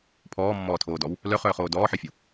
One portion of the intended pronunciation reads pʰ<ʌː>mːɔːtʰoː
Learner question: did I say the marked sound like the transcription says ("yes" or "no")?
no